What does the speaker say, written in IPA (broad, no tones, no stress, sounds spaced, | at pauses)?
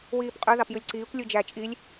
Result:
w iː p qʼ ø ð ɑ p j ɯ lʲ ǀ iː kʷ lʲ ɯ d͡ʒ æ t͡ʃʼ i lʲ